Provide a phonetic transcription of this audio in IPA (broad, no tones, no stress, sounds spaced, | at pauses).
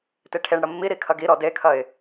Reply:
t e ʈʰ e ɳ ɽ ɐ mː i ɾ i kʰ ɐ ɡ i ɾ ɔ d e kʰ ɐ ɪ̯